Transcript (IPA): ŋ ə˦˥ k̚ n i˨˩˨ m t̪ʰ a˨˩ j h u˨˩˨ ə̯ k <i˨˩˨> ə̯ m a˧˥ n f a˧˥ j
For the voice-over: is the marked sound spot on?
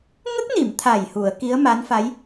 no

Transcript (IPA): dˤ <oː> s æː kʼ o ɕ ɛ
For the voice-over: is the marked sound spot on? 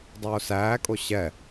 yes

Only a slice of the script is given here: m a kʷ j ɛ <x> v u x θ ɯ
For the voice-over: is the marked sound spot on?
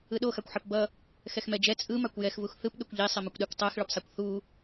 yes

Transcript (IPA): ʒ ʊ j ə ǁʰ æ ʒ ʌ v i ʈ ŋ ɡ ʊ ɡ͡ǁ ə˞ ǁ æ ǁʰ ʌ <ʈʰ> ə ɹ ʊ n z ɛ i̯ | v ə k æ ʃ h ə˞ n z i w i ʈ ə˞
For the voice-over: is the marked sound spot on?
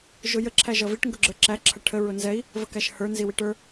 yes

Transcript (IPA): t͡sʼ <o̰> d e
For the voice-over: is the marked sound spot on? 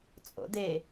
yes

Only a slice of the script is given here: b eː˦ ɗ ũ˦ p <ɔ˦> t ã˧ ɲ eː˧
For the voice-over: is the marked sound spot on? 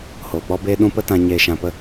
no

